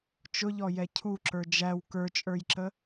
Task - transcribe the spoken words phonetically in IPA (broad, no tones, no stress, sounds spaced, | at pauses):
t͡ʃ ʊ ʎ ɔ j ɛ cʰ u ǁ ə˞ d͡ʒ æ w k ə˞ t͡ʃʼ ə˞ j ǁ ə